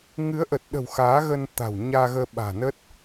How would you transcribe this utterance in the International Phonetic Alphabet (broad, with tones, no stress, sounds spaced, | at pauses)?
ŋ ɨ˨˦ ə̯ ʔ ə˨˩ t̚ ɗ ə̤˨˩ w x aː˨˦ ɣ ə˧ n t̪ a̤˨˩ w ɲ aː˧ ɣ əː˧ ɓ a̤ː˨˩ n ə˦˥ t̚